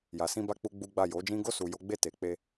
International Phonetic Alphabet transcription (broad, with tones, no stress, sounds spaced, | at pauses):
j a˨ s ĩ˧ b a˧ k͡p u˦ ɡ͡b u˦ ɡ͡b a˦˨ j o˨˦ d͡ʒ ĩ˦ ɡ o˦˨ s u˨ j o˨˦ ɡ͡b e˦˨ t e˨ k͡p e˧